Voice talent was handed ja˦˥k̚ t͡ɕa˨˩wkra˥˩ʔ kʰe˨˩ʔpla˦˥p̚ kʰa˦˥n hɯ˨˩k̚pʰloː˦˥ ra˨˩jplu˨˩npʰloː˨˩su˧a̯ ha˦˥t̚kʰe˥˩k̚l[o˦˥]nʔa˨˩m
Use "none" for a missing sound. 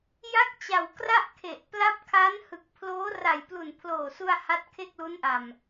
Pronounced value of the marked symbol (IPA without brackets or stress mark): u˦˥